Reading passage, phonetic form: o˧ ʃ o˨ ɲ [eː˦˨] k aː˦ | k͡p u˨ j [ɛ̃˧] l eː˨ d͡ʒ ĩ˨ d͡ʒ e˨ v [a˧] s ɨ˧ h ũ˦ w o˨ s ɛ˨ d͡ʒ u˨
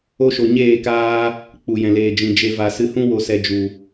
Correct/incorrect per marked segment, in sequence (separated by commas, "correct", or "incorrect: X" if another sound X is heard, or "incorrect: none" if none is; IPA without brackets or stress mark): correct, incorrect: ɛ̃˨, incorrect: a˨